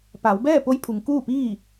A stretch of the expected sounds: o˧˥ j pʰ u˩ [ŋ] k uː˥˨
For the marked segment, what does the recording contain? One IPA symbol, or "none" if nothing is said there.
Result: ŋ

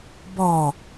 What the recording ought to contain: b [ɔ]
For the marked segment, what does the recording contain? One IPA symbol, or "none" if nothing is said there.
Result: ɔ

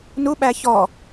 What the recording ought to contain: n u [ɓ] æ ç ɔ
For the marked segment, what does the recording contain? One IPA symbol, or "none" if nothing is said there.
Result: ɓ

